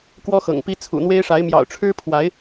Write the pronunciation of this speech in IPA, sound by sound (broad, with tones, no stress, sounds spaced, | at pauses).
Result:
k w ɔ˦ x ɤ̰˨˩ ŋ p i˦ t͡sʰ ṵ˨˩ n̪ w e˦ ɪ̯ ʂ a˨˦ ɪ̯ m j ɑ̰˨˩ ʊ̯ ʈ͡ʂʰ ɻ̩˦ pʰ w a˨˦ ɪ̯